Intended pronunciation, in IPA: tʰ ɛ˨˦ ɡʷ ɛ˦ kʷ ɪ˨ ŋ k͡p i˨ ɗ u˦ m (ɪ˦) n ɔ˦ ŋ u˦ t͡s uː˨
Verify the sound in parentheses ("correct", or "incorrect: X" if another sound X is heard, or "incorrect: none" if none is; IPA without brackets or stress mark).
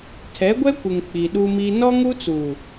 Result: incorrect: i˦